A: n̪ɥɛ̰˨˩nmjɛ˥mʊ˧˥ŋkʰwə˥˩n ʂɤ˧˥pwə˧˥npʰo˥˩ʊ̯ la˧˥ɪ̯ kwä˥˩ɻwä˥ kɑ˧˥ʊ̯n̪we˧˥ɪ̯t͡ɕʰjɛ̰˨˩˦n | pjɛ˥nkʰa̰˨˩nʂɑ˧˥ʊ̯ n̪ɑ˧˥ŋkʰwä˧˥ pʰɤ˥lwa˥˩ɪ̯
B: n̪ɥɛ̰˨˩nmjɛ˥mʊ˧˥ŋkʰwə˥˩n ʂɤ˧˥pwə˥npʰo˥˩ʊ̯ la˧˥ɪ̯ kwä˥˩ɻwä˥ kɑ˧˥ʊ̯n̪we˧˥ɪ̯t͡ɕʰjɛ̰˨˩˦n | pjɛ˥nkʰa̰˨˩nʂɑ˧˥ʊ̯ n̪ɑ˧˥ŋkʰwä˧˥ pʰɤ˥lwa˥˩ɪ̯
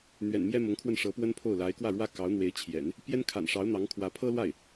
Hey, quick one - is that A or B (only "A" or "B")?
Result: B